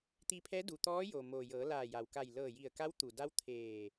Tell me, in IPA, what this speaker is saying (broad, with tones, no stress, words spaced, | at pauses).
t̪i˧pʰɛː˧˥ du˩ t̪ɔː˧˥jo˩ moː˩jɤː˩˧ laː˧˩ ja˩wka˧˩j lɤː˧˩ji˧˩ə̯ka˧˥w t̪u˩da˧˥w t̪ʰeː˧˩